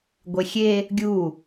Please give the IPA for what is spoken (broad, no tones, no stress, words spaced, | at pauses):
ɡʷexʲe | ɡʲu